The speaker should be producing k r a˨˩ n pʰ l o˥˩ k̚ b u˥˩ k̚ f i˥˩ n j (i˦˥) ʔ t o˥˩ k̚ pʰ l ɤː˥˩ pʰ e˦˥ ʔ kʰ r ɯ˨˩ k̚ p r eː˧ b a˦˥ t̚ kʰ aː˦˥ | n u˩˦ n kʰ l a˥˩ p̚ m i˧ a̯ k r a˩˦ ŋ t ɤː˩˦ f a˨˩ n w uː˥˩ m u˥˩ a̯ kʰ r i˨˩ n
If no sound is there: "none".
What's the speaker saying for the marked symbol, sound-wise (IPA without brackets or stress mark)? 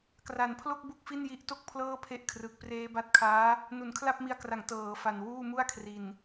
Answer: i˦˥